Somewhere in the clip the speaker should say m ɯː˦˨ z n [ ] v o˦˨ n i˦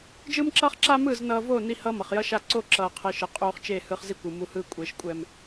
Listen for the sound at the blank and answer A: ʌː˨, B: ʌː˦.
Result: A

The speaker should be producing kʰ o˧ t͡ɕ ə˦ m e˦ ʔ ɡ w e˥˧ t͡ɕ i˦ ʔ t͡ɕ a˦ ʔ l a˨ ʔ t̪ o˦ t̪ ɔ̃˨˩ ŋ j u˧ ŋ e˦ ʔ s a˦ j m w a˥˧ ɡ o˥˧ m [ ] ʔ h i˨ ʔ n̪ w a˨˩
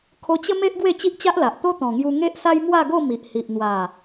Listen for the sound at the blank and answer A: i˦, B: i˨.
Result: B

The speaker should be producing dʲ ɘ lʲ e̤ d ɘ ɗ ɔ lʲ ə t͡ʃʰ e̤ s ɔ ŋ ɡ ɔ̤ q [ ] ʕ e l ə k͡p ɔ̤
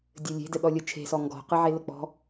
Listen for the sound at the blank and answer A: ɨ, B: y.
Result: A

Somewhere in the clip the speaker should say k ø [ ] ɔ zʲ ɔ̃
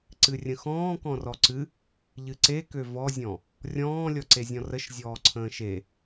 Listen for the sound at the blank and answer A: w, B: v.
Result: B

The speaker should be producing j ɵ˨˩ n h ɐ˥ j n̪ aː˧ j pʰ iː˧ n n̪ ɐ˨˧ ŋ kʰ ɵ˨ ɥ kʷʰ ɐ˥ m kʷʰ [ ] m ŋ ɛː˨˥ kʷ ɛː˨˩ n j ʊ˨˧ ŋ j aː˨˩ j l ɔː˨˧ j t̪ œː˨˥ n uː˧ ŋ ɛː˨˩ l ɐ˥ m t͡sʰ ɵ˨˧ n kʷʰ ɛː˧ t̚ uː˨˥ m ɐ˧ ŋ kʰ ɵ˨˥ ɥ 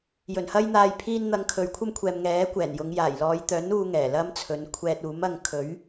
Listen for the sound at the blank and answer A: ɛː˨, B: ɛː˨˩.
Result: A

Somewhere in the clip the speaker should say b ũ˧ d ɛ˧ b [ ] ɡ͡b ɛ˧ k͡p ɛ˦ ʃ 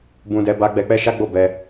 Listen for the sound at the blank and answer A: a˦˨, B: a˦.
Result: B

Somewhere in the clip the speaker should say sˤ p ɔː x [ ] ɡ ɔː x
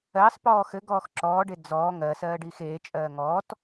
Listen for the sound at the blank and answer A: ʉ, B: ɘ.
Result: B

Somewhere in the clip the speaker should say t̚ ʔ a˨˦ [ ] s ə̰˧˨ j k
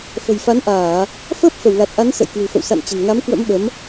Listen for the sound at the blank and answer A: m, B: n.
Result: B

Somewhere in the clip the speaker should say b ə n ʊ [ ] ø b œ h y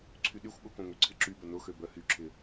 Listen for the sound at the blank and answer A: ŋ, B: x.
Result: B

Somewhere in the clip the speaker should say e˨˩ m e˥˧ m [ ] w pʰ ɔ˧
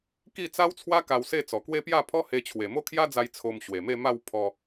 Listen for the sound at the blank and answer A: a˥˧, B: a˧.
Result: A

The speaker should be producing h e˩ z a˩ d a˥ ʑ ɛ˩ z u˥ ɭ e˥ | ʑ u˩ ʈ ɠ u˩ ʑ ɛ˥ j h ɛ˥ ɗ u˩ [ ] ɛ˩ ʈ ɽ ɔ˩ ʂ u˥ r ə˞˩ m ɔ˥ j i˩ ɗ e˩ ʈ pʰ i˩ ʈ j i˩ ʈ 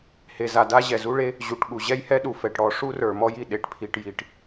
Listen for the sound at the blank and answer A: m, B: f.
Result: B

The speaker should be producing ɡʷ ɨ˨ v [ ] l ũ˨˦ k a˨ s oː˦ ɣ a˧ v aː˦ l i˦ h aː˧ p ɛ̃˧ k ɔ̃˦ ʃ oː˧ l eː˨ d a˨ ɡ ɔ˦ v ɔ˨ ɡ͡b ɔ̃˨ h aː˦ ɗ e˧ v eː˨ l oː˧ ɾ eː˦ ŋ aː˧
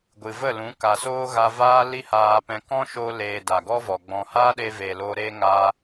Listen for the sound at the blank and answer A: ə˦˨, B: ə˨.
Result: A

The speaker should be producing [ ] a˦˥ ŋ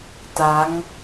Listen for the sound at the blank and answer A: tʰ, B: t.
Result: B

